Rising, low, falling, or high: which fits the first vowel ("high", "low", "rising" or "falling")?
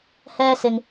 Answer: high